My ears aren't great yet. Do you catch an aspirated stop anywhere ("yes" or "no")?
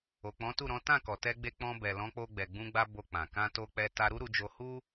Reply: no